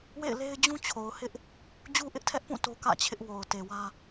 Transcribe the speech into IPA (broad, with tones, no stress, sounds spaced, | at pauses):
w ḛ˦˨ ɪ̯ l e˦ ɪ̯ d͡ʑ ũ˦ t͡ɕʰ o˨ ʊ̯ h ɪ˦ ʔ | d͡ʑ u˦ ʔ ɪ˦ ʔ tʰ ɛ˦ ʔ p ũ˦˨ t o˦ k ä̰˦˨ t͡ɕʰ ɪ˦ ʔ w o˨ ʊ̯ t e˨ w ä˦